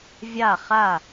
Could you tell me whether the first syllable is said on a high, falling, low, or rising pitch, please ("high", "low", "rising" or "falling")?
falling